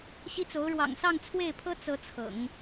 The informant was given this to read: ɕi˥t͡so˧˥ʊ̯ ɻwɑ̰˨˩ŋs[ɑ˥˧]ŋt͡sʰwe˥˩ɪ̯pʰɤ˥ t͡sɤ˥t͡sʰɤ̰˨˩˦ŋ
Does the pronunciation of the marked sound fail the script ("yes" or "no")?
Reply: no